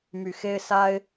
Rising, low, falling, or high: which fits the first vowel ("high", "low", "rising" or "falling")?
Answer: low